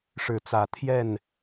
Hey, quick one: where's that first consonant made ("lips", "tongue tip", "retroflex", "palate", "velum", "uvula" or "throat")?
retroflex